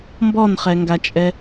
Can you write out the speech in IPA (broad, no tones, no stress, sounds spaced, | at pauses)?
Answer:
m b ɔ n χ ɛ ŋ ɡ a t͡ʃʼ ɛ